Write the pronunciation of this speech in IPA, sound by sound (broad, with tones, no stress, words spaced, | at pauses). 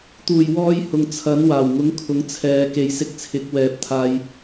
t̪uː˨˩jwɔː˧j hʊ˨ŋt͡sʰɐ˨˥n waː˨˩w ŋʊ˨˥ŋkʰʊ˨˥ŋt͡sʰɛː˨ ke˨˧jsɪ˧k̚t͡sʰɪ˨˥k̚ wɛː˨p̚ t̪ʰaː˧j